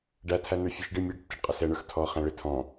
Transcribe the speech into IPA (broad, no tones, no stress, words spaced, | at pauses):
ɖætʰæ nə˞fʲɔʃɖɪ mʲɛɖtːɪɖ qʼəsɛɳə˞x tʰɔ χæ̃ɭɪ tʰɔ̃